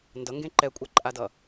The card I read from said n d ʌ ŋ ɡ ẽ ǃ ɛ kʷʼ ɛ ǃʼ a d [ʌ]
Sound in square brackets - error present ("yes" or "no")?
no